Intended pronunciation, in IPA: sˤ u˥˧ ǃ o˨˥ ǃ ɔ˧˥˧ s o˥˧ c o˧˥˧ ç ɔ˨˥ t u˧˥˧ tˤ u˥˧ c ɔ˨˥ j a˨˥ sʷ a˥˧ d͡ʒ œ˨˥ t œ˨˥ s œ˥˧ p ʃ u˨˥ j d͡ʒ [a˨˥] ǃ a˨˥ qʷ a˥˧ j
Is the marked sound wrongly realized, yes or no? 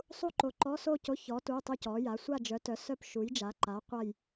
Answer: no